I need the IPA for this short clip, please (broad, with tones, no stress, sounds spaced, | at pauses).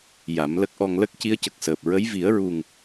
j a˨˩˦ m l ə˦˥ k̚ ʔ ɔ˧ ŋ l ə˦˥ k̚ c i˧˥ ə̯ c ə˨˩ k̚ s əː˨˩ p̚ ɹ ə˧˥ j v i˨˩˦ ə̯ ɹ u˨˩ ŋ